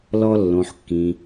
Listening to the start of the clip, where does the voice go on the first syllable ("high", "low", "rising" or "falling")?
high